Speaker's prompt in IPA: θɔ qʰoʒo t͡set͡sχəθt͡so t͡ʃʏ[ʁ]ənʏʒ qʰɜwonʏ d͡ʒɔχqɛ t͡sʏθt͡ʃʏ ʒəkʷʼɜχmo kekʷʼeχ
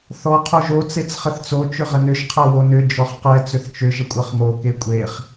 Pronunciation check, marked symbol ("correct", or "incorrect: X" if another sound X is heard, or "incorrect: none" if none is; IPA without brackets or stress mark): correct